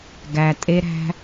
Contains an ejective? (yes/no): yes